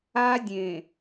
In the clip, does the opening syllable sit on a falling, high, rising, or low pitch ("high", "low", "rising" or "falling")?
high